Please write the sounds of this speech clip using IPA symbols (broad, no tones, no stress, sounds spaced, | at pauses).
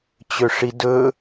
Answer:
t͡ɕ ø ʂ i d ɵ